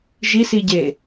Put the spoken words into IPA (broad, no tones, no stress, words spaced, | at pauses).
ʒisiɟe